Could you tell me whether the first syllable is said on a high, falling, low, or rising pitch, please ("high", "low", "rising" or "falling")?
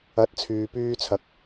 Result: rising